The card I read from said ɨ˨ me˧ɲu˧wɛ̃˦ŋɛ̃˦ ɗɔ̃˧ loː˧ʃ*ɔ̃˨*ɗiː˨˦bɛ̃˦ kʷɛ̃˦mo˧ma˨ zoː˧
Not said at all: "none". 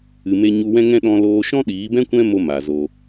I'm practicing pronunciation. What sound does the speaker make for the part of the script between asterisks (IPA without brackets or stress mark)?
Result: ɔ̃˦